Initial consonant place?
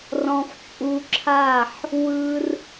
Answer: alveolar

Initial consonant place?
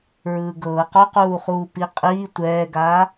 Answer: alveolar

